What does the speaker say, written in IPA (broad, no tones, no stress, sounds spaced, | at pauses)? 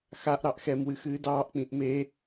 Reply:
x a ʔ ɾ ɑ ʔ x ɛ m w ɨ x ɨː d ɑː ʔ k͡p ĩ ʔ m e